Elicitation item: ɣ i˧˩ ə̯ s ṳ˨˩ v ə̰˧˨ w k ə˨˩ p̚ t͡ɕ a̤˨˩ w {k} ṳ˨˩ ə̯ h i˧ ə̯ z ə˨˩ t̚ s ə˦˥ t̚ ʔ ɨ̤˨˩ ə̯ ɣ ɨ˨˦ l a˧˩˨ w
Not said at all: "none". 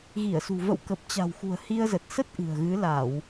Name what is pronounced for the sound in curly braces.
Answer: x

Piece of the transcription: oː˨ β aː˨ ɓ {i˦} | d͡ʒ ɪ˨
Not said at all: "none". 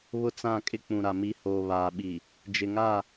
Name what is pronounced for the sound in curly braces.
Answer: i˨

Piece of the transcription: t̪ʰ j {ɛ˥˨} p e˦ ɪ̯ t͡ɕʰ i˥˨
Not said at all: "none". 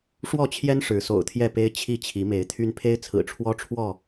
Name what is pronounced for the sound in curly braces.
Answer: ɛ˥˨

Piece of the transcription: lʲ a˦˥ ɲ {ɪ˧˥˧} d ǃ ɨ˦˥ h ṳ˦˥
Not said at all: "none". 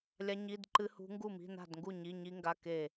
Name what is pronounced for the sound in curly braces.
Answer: i˧˥˧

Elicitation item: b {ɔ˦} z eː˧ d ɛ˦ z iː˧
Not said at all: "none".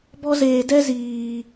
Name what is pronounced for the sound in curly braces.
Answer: ɔ˦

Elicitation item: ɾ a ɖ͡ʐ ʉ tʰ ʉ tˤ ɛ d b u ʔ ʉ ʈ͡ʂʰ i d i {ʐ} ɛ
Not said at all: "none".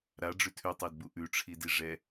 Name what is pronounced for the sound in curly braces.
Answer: ʐ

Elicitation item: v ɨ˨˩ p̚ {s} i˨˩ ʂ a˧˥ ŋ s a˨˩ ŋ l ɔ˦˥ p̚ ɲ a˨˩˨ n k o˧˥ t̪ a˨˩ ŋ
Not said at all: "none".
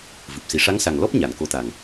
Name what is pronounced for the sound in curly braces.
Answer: s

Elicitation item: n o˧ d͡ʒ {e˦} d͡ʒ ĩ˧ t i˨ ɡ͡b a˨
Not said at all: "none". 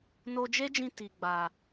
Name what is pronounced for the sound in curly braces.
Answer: e˦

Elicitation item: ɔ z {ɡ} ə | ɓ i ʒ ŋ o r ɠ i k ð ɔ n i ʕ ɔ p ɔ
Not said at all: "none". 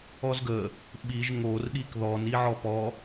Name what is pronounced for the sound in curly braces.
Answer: ɡ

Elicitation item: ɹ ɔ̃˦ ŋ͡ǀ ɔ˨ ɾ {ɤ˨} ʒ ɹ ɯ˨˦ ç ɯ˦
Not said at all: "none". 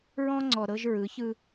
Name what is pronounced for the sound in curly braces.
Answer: ɤ˦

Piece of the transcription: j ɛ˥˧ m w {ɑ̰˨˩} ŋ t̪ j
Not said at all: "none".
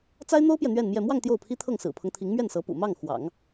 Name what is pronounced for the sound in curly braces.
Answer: ɑ˥˧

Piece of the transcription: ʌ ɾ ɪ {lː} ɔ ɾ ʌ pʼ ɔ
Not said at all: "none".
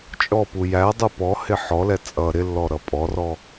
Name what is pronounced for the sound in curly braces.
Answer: lː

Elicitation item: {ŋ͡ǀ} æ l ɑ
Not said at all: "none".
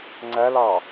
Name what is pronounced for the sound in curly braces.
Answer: ŋ͡ǀ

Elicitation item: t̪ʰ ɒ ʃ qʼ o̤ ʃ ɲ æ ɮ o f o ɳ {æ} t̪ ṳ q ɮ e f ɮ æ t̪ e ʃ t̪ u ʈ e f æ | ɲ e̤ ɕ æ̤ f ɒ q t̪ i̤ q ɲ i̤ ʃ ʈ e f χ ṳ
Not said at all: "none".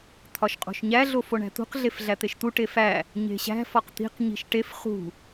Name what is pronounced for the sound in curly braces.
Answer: æ̤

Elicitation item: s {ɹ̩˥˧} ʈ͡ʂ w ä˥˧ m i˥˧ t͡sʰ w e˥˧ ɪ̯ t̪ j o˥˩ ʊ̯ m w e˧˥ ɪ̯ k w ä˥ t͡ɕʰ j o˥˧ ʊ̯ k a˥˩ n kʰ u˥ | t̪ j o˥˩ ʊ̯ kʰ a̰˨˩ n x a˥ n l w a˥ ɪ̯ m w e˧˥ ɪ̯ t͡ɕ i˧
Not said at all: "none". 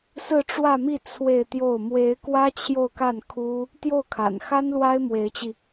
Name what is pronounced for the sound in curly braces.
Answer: ɹ̩˥˧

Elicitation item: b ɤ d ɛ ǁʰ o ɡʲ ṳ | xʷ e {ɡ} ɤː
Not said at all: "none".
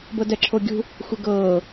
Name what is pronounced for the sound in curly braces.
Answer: ɡ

